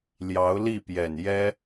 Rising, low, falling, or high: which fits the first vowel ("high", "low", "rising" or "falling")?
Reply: rising